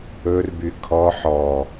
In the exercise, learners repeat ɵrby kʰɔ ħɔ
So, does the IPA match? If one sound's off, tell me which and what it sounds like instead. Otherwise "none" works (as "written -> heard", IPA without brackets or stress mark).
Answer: none